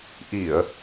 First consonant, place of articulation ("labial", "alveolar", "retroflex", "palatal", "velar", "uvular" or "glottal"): glottal